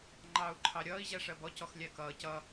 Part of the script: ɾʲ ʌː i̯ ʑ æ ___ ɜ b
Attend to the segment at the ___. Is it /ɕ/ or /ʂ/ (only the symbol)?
ʂ